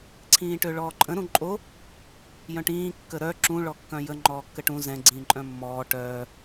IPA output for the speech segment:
ǀʰĩːʈøɭɔːǃʼə̃ ɾũǃʼo | jœ̃ʈĩː kːəɾœ ǁũ ɭɔkːœ̃jə ŋ͡ǃɔːkːəʈũ zɛ̃ ɡ͡ǀĩːǃʼœ̃mːɔː ʈœː

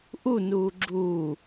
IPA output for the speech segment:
ʔunuː ɡ͡ǁuː

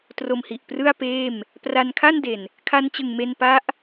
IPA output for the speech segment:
tro˧mhi˨˩ʔprɯ˥˩a̯peː˥˩m | pra˧nkʰa˥˩nde˨˩n | kʰa˧nt͡ɕɯ˨˩ŋ me˧npa˦˥ʔ

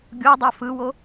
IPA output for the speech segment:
ɡʲodˤa fɯwo

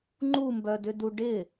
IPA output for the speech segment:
ŋ͡ǃumbœdʏdu ɖɪ

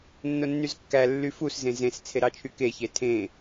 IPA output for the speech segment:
nːonːyzkːæ lːyfus zẽzẽs t͡sʰeɾɑt͡ʃʰyke çetʰẽ

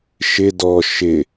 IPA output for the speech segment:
ʃɪ dɔ ʃɪ

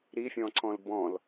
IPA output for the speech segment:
ɾifʲɔ̃ǀɔ̃l bɔ̃l

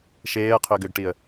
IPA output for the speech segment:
ʃeːə̯qʰʏːɡ ʏɡʈiə̯

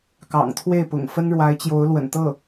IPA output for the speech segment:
kɑ̰˨˩ŋt̪ʰwe˥˩ɪ̯pʊ̰˨˩ŋ fə˥nɻwa˧˥ɪ̯t͡ɕjo˧˥ʊ̯ lwə̰˨˩nt̪ɤ˥˩

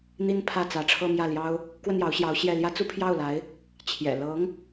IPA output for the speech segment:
n̪i˥n pʰä˥˩t͡sä˧˥ʈ͡ʂʰɤ˥˧ mjä˥˩ljɑ˥ʊ̯ | kwə˥˩njɑ˧˥ʊ̯ɕjɑ˧˥ʊ̯ ɕjɛ˥˩ ljä˥t͡su˥pʰjɑ˥˩ʊ̯la˧˥ɪ̯ | t͡ɕʰjɛ̰˨˩ lɤ˧˥ŋ

